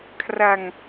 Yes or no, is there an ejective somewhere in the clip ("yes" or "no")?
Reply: no